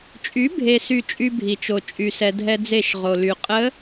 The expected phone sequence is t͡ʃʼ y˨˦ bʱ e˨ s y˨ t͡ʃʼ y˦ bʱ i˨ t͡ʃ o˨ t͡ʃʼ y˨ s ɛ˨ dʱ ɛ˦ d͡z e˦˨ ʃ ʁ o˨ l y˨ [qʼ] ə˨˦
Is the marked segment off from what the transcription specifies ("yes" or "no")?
no